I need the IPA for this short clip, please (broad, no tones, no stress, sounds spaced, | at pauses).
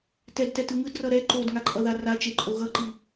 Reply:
t ɛ d t ɛ t ɯ ŋ ɯ d r ʌ ɾ ɛ ǃ o d ŋ a ǃʼ ʌ ð a r a t͡ʃ e ǃʼ o ɣ ʌ ǃ i